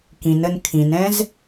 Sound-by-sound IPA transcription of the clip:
kĩnən kʰĩnɛ̃z

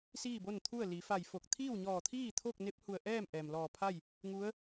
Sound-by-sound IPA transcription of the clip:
siː˥˨bo˥˨nt̪ʰu˥˨ə̯ li˩˧ fa˧˩jfo˧˩k̚ t̪ʰiː˥˨wɲɔː˧˩t̪ʰiː˥˨ t̪ʰo˥˨k̚ ne˧˥p̚hu˧˩ə̯ʔɛː˥˨m ʔɛː˩mlɔː˧˩pʰa˥˨j | ŋu˧˥ə̯

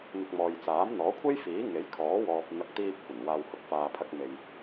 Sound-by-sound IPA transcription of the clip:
n̪ɪ˧k̚mɔː˨j t͡saː˨˥mn̪ɔː˨˥kʷʰe˥jfiː˨˥ ŋe˨˥jkʰɔː˨˥wɔː˨p̚ n̪ɐ˧k̚ t̪iː˧p̚kʷɐ˨˩n waː˨whʊ˨˥k̚faː˨ pʰɐ˧k̚me˨j

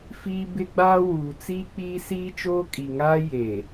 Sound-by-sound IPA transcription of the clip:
fiː˦ bɪ˦ɡ͡baː˦ wuː˨t͡siː˦ k͡piː˦siː˦t͡ʃoː˦ kʼi˨ŋaː˦ je˨

